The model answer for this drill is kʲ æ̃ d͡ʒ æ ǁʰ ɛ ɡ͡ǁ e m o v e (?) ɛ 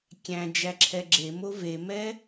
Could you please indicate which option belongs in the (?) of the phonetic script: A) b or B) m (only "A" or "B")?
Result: B